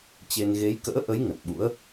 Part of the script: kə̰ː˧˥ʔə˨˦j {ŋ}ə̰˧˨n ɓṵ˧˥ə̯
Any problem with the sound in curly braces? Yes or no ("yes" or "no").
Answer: no